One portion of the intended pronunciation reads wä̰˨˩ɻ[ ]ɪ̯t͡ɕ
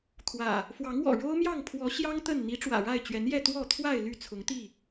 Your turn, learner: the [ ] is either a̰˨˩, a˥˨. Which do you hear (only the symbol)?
a˥˨